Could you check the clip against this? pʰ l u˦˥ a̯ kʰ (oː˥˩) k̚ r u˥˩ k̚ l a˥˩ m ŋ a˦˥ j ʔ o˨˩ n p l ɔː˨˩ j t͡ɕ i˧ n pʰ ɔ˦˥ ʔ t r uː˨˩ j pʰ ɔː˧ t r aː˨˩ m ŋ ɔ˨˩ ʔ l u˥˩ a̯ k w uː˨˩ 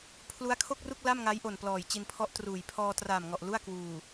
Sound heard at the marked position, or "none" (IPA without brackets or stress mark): o˥˩